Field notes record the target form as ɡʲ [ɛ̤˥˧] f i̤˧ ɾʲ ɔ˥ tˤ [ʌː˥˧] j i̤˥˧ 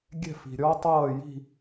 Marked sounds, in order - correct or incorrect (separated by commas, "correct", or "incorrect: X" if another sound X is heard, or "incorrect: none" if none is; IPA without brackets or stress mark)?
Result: correct, correct